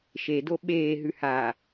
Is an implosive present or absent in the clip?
present